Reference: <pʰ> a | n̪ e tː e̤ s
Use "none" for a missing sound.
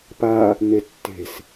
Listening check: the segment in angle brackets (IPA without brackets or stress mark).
p